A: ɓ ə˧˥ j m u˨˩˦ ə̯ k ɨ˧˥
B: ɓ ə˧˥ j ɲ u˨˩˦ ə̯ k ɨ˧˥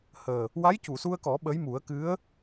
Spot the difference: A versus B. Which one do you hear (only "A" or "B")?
A